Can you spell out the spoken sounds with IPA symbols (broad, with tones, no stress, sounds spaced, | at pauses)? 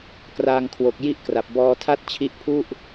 k r aː˧ ŋ kʰ w o˨˩ k̚ j i˥˩ ʔ k r a˨˩ p̚ b ɔː˧ tʰ a˥˩ t̚ t͡ɕʰ i˦˥ ʔ pʰ u˥˩ ʔ